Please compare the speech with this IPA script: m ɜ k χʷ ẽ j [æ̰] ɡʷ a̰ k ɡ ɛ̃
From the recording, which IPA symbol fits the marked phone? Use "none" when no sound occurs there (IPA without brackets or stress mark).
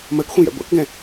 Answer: æ̰